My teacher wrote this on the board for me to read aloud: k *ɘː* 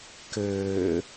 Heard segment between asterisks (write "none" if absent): ɘː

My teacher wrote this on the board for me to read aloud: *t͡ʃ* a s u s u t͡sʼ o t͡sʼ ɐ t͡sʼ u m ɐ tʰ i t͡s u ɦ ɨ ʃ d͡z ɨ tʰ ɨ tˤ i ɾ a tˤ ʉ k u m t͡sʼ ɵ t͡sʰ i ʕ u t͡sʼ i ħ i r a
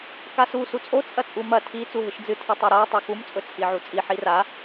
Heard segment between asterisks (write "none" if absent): k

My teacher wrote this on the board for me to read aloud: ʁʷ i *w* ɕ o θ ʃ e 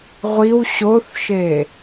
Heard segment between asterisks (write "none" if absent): w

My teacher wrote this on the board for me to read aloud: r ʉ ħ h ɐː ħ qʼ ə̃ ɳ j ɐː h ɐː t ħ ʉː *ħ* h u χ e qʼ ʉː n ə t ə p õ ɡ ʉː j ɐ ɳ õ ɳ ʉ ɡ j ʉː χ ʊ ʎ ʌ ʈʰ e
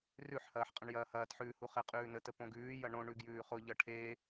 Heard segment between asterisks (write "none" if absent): none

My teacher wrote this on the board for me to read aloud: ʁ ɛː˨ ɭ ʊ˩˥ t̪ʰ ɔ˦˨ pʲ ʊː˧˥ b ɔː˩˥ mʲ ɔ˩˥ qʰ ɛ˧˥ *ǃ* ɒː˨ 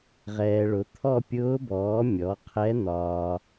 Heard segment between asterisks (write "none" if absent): n̪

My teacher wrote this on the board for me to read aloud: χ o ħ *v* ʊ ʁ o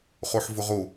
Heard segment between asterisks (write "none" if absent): v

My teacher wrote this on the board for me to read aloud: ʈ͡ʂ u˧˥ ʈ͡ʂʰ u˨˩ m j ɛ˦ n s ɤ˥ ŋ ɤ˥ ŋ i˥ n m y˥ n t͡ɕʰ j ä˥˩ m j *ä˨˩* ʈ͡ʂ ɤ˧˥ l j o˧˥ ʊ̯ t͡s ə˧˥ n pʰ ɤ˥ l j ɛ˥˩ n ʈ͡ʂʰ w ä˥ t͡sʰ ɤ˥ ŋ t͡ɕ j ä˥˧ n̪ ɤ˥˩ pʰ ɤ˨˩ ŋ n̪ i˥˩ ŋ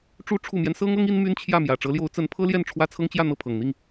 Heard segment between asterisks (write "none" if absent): ä˨˩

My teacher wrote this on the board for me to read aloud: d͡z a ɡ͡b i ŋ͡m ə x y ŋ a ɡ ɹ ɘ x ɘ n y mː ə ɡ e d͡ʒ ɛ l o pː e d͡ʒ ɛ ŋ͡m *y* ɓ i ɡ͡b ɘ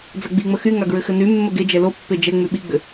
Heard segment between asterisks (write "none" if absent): y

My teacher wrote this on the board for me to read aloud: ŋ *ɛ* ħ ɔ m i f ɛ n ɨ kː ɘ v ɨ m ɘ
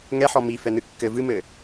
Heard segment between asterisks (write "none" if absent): ɛ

